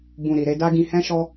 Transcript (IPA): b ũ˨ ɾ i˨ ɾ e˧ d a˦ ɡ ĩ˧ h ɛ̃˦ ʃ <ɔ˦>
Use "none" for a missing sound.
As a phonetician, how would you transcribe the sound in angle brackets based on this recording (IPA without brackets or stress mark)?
ɔ˦